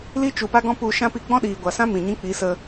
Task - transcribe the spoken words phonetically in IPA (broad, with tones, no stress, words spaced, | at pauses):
li˦ t͡ʃu˨pa˦ɡɔ̃˦ pu˧ ʃã˦pi˧ ɡ͡bɔ̃˦ɗiː˨ɡʷa˨sã˦ mĩ˨ ɲĩ˦k͡pi˨˦sə˧